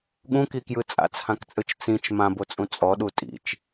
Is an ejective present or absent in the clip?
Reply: present